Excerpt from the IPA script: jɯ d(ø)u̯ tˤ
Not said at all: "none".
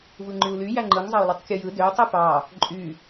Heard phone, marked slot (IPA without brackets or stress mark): ø